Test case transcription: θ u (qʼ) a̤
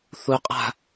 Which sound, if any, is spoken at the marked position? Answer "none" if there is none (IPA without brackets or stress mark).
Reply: qʼ